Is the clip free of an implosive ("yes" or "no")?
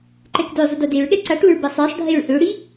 no